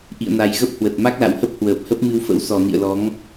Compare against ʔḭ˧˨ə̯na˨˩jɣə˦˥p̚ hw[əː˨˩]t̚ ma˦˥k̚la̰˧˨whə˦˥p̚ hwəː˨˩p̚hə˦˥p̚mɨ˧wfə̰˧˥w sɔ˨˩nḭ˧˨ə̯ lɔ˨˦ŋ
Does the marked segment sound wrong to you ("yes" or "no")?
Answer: yes